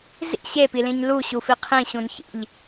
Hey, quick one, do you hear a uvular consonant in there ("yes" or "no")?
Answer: yes